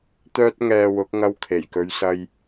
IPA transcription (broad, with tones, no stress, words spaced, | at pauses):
t̪œː˥t̚ŋɛː˧wʊ˨˥k̚ ŋɐ˧wkʰe˨˩jkɵ˨˧ɥsɐ˧j